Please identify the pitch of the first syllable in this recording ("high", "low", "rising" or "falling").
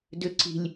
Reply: high